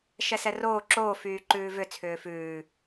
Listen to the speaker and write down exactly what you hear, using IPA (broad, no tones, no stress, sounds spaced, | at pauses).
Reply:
ʃ ɛ s ɛ r oː ǁ oː f yː ǃ ʉː v ʏ t͡sʰ ʏː f ʉː